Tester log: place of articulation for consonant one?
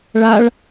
retroflex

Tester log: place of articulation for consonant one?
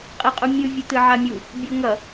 uvular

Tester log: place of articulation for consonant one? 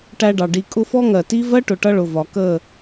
retroflex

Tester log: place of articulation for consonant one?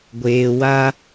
velar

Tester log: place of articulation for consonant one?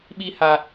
labial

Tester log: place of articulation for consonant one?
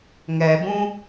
velar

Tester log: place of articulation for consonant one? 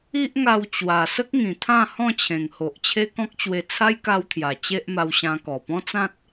glottal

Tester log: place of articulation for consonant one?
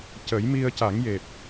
palatal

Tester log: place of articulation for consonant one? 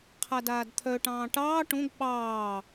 uvular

